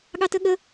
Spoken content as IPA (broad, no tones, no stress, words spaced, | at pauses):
ɠɑtəɠə